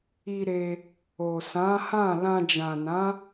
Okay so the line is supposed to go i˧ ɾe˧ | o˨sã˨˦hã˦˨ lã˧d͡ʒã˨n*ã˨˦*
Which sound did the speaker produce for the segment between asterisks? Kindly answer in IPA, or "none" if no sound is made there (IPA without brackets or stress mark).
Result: ã˨˦